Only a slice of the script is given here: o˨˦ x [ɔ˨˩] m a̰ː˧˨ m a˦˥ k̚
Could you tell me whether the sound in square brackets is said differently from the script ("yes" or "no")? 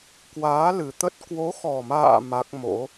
no